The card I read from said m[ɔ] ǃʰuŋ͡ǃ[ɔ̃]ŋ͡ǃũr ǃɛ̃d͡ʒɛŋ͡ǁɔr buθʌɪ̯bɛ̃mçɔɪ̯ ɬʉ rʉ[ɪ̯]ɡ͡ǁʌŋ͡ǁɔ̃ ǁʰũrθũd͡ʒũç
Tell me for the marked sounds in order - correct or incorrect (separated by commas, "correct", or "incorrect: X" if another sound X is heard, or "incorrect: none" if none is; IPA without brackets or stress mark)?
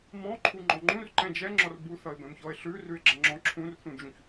incorrect: ɔ̃, correct, correct